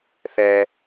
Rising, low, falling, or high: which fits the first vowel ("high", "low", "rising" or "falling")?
high